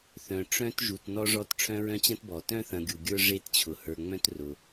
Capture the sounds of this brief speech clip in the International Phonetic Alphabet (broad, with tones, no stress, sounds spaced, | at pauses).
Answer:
θ œ̃˩ ʈ͡ʂ œ̃˦ t ʒ u˩ t n ɔ˦ ʐ ɔ˦ t ʈ͡ʂʰ œ̃˦ ɹ œ̃˦ t͡ɕ ɐ̃˥ t b ɔ˩ t œ̃˥ θ ɐ̃˨ ɡʲ u˩ ɡʲ ə˞˥ ʐ e˦ t t͡ɕʰ ʊ˩ h ə˞˨ ŋ͡m œ̃˥ t r ʊ˩